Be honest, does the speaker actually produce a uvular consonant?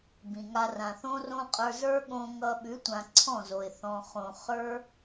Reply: yes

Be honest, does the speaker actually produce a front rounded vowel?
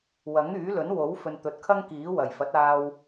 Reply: yes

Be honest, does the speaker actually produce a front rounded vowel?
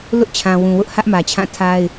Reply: no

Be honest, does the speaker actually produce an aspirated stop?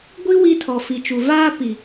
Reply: yes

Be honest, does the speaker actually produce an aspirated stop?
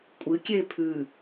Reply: yes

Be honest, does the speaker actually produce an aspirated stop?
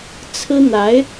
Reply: yes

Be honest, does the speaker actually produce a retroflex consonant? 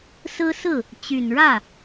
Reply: yes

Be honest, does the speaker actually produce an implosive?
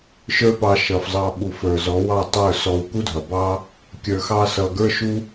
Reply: yes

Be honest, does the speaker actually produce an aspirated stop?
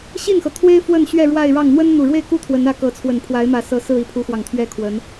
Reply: yes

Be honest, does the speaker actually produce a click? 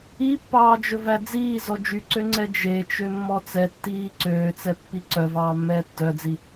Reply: yes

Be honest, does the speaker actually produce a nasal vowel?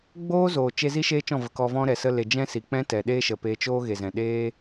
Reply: yes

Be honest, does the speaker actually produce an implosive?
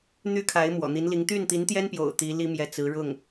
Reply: no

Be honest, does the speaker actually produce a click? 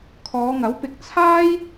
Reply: no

